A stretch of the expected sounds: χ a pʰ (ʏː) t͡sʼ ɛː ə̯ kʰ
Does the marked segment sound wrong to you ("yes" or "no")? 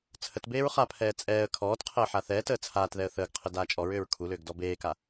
yes